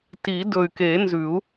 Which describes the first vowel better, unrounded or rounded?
unrounded